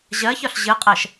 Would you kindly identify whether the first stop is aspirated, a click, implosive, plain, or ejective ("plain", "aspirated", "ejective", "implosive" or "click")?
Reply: ejective